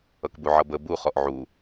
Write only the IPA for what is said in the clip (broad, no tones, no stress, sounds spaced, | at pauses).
ʌ k b u ʕ ʌ b ə b u χ ɔ ʔ ʕ u